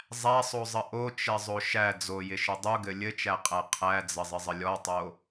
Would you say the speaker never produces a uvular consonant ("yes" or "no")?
no